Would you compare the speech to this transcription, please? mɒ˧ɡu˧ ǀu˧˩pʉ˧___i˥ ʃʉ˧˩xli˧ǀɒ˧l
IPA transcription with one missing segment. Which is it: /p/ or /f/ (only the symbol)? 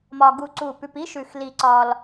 p